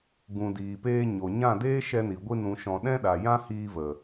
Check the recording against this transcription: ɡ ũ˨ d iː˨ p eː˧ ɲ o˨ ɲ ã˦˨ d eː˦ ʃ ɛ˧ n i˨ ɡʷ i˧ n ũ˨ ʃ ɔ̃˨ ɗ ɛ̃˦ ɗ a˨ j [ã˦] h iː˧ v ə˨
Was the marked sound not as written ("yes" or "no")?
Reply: no